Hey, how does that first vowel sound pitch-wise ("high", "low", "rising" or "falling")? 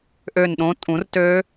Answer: falling